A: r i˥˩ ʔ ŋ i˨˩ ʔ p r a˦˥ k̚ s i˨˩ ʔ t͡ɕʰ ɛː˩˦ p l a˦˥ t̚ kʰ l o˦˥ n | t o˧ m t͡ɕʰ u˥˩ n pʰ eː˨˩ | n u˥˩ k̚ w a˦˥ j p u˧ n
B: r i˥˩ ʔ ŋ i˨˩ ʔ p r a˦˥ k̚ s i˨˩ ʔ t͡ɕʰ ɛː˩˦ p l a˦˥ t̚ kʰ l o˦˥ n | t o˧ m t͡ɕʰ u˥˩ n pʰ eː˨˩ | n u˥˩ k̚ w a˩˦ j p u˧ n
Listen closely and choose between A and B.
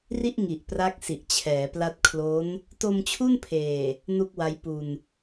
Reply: A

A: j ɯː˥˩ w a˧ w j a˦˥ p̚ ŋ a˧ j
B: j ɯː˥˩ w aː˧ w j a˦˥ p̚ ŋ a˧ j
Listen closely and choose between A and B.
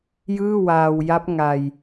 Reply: B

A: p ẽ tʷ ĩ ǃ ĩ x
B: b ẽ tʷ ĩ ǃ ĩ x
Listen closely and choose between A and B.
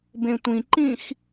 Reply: B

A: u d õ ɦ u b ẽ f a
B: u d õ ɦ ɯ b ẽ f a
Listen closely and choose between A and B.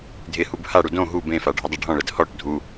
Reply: A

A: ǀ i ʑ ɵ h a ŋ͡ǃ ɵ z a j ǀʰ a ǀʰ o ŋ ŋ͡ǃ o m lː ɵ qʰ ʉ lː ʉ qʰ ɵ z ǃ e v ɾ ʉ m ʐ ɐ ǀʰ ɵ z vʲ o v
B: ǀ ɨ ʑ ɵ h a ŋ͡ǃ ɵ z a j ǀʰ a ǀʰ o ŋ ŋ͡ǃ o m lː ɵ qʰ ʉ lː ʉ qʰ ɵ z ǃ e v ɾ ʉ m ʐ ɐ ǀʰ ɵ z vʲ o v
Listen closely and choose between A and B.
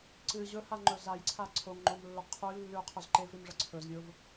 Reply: B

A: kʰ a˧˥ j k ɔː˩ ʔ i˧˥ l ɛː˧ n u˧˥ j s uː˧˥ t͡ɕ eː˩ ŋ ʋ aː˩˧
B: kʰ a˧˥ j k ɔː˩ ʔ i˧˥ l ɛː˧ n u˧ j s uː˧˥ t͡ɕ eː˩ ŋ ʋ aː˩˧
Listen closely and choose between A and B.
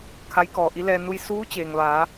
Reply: B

